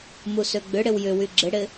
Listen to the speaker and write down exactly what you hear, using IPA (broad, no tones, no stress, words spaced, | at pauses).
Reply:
musøɡ͡bʏɽɪw jʏ wyɡ͡ǁɪɽɪ